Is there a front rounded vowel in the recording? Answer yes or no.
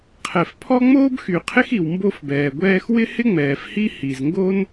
yes